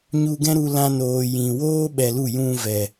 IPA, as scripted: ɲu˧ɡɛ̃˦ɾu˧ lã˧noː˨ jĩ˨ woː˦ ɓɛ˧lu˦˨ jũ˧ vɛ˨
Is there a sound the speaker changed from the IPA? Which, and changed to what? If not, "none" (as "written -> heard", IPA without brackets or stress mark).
none